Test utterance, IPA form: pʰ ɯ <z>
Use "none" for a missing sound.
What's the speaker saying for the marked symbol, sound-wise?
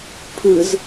z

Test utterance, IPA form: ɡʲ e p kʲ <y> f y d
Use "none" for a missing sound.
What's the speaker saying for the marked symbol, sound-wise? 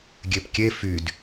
e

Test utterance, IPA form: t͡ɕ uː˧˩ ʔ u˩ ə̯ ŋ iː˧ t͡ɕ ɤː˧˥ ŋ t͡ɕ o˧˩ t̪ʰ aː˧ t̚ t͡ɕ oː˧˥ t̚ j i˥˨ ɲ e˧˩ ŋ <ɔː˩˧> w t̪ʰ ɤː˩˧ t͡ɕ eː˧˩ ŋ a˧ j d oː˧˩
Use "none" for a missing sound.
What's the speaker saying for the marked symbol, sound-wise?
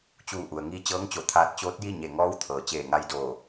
ɔː˧˥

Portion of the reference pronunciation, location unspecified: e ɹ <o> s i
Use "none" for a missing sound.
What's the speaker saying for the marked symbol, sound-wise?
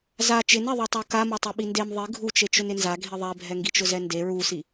u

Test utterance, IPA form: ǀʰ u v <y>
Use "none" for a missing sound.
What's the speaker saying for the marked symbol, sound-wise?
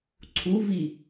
i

